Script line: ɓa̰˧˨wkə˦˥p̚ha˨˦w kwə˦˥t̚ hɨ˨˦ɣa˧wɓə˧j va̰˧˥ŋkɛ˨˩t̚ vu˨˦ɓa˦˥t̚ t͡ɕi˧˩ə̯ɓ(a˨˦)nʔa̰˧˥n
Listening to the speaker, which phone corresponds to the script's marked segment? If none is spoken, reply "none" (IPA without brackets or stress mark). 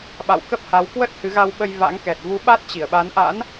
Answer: a˨˦